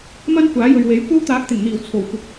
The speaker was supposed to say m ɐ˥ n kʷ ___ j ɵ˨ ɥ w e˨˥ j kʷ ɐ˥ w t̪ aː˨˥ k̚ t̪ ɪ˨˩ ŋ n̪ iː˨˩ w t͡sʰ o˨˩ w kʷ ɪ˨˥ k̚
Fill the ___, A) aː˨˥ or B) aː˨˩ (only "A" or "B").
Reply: A